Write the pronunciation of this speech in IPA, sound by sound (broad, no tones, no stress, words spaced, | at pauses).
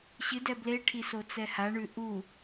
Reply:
ɕɨdɛ bleʈʰi sot͡sɛhaɳʉ ʔu